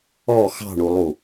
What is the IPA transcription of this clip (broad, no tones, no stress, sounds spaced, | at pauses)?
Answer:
ɔ x ɑ̤ ɳ u lˠ u